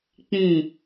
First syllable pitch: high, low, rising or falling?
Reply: low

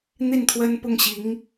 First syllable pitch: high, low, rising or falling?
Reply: falling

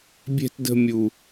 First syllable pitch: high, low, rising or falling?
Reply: high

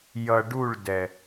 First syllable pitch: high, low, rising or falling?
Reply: low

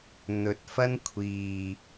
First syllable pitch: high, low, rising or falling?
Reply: rising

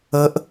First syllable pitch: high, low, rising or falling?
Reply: rising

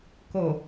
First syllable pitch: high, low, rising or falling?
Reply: low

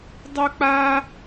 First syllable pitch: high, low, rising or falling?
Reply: high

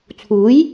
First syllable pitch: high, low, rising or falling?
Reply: rising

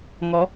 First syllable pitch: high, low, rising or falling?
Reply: rising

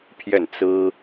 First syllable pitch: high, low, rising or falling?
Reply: falling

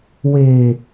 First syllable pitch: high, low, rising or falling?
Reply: low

